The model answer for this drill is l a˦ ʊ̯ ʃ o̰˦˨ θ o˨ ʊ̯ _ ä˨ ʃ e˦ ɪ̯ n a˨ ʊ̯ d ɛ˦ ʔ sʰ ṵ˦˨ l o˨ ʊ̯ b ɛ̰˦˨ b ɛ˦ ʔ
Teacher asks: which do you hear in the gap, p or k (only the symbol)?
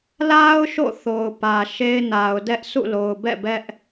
p